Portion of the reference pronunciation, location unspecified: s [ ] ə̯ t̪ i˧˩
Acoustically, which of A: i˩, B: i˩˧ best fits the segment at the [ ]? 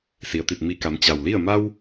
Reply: A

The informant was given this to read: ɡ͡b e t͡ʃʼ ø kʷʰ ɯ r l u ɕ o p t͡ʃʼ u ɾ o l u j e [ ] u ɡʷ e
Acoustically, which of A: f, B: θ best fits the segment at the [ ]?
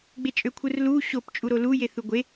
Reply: B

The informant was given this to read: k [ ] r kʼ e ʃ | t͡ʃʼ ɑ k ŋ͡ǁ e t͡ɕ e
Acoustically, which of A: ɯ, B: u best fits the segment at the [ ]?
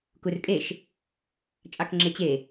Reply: B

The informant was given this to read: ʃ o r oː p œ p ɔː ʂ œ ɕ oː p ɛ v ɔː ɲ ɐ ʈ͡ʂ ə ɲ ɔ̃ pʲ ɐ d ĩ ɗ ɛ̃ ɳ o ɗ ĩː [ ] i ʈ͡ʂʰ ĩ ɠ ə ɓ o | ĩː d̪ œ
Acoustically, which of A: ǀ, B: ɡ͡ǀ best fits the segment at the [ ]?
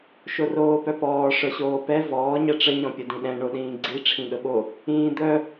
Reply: B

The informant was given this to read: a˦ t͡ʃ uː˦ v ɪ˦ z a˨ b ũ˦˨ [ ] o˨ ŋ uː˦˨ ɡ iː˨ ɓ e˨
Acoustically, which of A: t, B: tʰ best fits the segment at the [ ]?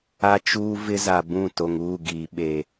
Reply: A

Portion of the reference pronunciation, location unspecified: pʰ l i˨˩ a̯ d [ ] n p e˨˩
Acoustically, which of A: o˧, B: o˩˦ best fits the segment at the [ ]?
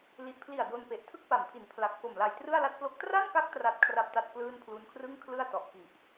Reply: A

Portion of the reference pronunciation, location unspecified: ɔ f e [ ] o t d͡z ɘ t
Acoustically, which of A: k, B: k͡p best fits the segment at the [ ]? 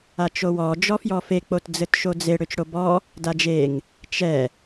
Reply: B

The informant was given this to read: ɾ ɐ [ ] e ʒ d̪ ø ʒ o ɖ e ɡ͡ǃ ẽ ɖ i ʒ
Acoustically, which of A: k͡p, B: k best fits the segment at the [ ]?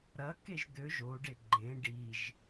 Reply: B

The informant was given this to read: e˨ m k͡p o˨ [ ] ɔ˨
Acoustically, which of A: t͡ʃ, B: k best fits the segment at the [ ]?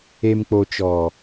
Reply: A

